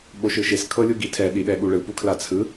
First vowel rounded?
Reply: yes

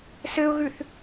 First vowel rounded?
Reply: no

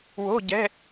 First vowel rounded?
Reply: yes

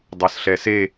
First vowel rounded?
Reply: no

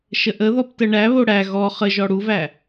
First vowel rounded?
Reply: no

